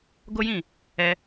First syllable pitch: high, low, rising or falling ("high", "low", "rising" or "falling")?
high